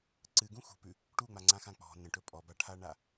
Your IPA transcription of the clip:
ǀ ɨ ɡ ũ x ṳ p ʉ | ʈ u ŋ͡m a ŋ͡ǀ ã x ã k͡p ɔ̤ n ə̃ ʈ ɵ pʼ ɔ b a ʈʰ a ɳ a

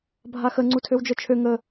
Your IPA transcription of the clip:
bʱ a x ə ŋ͡ǀ u tʰ ø w d͡ʒ œ t͡ʃʰ ø ŋ ə

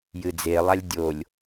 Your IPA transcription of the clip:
j ɨ d͡z e lˠ a lʲ dʲ o lʲ

